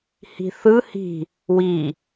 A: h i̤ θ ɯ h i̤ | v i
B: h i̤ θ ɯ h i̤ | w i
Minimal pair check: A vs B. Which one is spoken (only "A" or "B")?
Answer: B